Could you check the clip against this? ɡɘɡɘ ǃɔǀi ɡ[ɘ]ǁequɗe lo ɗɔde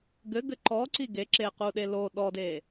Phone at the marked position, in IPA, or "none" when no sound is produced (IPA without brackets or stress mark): e